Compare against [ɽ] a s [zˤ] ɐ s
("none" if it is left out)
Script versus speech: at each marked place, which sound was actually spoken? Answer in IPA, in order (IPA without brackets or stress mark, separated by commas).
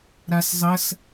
ɾ, zˤ